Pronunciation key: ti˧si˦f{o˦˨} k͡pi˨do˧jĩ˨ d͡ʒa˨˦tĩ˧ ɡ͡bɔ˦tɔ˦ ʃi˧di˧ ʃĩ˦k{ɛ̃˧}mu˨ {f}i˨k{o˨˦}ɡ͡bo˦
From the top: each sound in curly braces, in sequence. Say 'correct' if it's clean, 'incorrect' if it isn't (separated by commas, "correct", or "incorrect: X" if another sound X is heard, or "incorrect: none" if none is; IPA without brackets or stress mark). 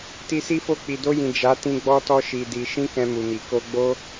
correct, correct, incorrect: m, incorrect: o˧